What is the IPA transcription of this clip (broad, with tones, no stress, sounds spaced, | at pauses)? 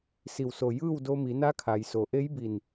s i˧˩ w s o˧˩ j ɯː˥˨ w d o˧ m i˩˧ n a˧˥ kʰ a˩ j s o˩ ʔ e˧˥ j b i˧˩ n